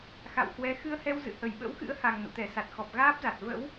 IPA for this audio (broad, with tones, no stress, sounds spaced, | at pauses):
x a̰˧˨ w h w ɛ˨˦ x ɨ˧ ə̯ h ɛ˧ w z ɨ̰˧˨ h ə˧˩ j ɓ ə̰˧˥ w x ɨ̰˧˥ ə̯ h a˨˩ ŋ n ṵ˧˨ t̪ ɛ˧˩ s a˨˩ t̚ x ɔ˨˩ p̚ ɣ aː˦˥ p̚ z a˨˩ t̚ v ə̰˧˥ w